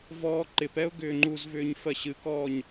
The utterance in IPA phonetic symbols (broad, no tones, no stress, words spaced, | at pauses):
vɔːǃɪpɛʊ̯ ɡʏːŋ͡ǃuzvʏːɲ fɜɕɨkɔːɲ